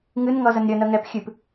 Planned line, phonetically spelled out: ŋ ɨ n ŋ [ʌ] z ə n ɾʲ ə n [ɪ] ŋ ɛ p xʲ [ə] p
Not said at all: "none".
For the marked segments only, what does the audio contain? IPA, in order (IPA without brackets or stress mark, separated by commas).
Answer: ʌ, ə, ɨ